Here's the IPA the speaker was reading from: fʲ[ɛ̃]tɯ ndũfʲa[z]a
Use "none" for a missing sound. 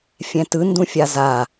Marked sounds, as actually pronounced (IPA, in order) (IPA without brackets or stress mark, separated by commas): ɛ̃, z